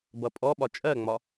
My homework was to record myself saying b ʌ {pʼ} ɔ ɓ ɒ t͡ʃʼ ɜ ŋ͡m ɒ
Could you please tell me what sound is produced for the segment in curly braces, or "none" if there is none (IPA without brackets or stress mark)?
pʼ